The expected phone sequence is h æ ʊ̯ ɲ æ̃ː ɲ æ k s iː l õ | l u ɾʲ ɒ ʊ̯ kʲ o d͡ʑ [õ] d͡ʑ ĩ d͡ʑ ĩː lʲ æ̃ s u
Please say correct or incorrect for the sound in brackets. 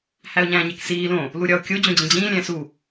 correct